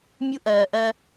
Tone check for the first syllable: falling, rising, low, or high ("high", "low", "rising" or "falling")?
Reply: high